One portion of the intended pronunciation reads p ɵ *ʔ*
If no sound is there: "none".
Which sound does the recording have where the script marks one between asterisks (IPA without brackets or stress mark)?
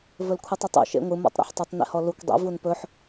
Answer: ħ